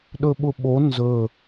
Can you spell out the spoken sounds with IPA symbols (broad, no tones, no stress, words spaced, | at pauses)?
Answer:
ɗɵɓʊɓo nzɵ